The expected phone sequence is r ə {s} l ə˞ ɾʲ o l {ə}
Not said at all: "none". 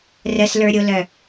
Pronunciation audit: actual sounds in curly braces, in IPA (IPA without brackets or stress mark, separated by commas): s, œ